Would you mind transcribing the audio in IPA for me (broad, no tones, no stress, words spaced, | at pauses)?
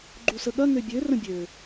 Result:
ɡ͡ǃusəɠɐ ŋøbʲø rə̃bʲø